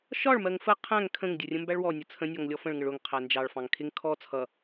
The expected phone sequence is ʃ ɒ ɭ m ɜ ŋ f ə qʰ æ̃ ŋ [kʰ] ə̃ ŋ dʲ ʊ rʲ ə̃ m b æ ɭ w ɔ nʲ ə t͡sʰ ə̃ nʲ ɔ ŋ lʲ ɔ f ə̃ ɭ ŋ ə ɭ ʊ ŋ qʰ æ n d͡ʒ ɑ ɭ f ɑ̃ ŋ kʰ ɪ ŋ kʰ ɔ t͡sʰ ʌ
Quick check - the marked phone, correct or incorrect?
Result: correct